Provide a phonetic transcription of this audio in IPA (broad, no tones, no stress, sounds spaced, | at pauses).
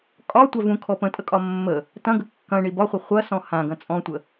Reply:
kʼ ɒ tʷ a v ũ kʰ ɔ p ə̃ tʼ ə kʼ ɒ mː ə | t ɐ̃ ɡ ə kː ɐ̃ ɳ i b ɒ χʷ ɐ χʷ ɐ s ɔ̃ h ã ɡ ɐ̃ t͡sʼ ɔ̃ tʷ ə